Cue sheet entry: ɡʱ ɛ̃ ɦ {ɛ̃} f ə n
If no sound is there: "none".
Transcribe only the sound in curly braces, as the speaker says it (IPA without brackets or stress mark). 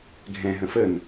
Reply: ə̃